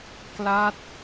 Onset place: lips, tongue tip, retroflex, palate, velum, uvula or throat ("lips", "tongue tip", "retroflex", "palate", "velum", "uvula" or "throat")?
velum